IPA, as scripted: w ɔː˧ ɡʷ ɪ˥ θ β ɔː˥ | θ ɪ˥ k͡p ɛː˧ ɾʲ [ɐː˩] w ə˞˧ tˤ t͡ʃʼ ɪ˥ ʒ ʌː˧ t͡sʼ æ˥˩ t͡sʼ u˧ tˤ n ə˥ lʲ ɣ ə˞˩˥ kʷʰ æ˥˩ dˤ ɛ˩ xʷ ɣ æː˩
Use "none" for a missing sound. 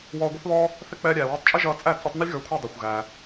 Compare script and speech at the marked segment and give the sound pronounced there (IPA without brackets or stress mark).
æː˩